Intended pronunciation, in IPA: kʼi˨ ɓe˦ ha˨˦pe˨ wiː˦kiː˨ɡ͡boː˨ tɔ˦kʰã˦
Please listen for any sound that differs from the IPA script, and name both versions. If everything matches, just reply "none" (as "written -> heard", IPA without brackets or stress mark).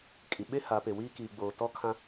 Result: none